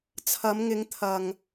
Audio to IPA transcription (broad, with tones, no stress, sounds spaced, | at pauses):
t͡sʰ ɐ˨˧ m ŋ ɪ˨˧ ŋ t̪ʰ ɐ˨ ŋ